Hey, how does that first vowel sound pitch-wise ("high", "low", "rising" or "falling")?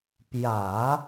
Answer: low